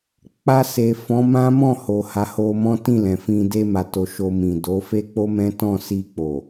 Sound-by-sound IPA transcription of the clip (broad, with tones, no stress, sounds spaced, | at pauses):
k͡p a˧ s e˨ f ɔ̃˨˦ m ã˦ m ɔ̃˦˨ h o˨ h a˨˦ h o˧ m ɔ̃˦ t ĩ˦˨ l ɛ̃˨ f ĩ˧ d e˧ m a˨ t o˨ ʃ o˧ m ĩ˨ d o˨˦ f e˦ k͡p o˦ m ɛ̃˦ t ɔ̃˦˨ s i˧ k͡p o˨